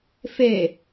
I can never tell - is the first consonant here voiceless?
yes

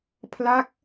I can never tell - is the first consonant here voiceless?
yes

